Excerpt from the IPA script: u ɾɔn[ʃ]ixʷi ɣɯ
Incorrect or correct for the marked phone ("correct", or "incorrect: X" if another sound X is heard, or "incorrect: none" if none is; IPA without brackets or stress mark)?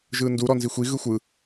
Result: incorrect: z